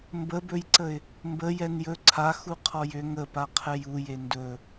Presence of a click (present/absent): present